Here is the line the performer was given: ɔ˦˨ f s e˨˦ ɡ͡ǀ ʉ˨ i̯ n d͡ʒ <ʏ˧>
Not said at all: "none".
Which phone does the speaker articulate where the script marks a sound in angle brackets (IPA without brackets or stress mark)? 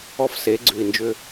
ʏ˧